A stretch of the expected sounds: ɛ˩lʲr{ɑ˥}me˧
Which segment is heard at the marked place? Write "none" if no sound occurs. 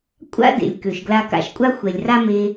a˥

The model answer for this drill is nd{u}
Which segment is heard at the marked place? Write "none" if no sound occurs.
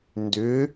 ʏ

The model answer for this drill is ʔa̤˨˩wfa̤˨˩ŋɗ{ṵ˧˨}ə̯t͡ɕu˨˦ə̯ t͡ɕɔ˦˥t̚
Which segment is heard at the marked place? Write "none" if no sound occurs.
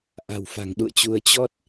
ṵ˧˨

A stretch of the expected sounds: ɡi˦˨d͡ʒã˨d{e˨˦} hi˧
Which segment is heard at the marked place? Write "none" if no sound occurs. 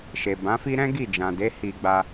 e˨˦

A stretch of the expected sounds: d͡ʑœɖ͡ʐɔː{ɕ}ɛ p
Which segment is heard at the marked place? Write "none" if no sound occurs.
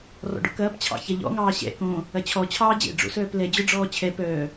t͡ɕʰ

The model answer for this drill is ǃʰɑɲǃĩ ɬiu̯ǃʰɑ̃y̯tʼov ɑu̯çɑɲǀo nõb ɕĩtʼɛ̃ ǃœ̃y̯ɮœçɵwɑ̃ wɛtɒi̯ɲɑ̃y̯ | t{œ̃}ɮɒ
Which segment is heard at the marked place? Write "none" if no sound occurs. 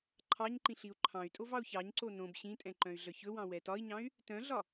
œ̃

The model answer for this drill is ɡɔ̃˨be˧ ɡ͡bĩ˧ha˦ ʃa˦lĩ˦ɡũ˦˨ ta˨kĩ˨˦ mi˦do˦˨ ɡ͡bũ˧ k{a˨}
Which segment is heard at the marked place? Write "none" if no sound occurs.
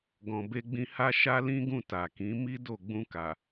a˨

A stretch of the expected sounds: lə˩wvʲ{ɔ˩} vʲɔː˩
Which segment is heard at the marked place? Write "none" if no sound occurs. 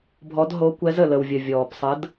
ə˩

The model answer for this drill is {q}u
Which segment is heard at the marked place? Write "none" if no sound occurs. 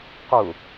q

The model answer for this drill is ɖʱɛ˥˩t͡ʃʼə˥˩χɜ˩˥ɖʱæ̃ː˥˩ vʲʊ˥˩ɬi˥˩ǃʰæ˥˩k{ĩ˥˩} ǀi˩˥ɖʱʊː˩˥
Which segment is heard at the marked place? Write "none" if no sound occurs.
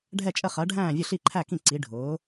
ĩ˥˩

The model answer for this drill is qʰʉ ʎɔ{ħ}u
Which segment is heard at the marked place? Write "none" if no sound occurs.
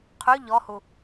h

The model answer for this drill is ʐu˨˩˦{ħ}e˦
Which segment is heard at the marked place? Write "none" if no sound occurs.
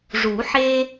ħ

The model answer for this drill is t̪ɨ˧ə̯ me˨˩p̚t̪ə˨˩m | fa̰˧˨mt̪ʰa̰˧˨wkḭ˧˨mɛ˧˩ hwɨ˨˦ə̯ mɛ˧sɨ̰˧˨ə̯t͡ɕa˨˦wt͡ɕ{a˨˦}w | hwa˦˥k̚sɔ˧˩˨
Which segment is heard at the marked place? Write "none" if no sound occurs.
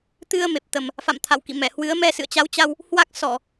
a˧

